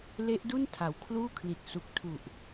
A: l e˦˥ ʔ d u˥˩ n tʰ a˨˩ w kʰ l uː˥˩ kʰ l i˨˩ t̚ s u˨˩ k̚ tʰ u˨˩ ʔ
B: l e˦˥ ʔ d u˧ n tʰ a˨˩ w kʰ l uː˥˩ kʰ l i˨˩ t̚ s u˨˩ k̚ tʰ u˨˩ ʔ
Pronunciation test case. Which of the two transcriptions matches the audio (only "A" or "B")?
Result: A